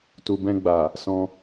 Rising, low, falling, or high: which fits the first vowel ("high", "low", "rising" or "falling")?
low